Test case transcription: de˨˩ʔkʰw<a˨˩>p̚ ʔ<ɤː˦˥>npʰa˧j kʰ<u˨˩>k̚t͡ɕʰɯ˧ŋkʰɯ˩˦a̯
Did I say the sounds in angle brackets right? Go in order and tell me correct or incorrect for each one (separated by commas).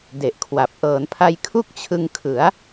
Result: correct, incorrect, incorrect